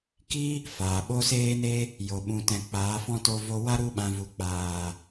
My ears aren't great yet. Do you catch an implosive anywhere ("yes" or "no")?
yes